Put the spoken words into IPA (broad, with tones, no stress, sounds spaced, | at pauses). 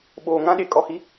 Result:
ɓ oː˨ ŋ ã˦ ɗ e˨˦ kʼ ɔ˨ h i˦